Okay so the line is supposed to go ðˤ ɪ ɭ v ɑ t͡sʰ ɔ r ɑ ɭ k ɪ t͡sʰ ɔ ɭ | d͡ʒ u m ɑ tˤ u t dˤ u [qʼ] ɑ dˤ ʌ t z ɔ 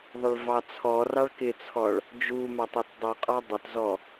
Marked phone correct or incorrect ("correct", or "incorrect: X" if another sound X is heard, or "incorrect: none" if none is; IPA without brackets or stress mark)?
correct